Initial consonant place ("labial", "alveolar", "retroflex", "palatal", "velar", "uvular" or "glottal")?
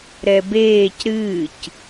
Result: alveolar